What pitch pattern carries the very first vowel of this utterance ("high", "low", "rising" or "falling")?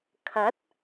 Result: rising